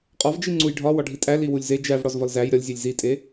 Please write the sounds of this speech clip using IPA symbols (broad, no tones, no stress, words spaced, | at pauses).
qʼɒvd͡ʒi ŋ͡ǀujɖʱɒ wɒɖʱitʼæ liwulʲze d͡ʒævɽɒz vɒlzæj ɾʲɒlʲzʲelʲ zitʼe